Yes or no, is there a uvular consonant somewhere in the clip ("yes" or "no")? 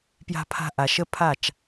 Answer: no